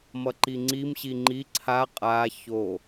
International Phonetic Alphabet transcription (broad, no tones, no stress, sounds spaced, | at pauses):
m ʌ ǃ i ŋ͡ǀ i m ɕ i ŋ͡ǃ i ǀʰ a qʼ a ç o